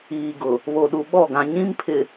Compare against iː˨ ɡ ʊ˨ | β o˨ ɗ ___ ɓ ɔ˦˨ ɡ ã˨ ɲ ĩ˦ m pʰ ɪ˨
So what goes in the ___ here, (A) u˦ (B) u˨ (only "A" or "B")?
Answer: B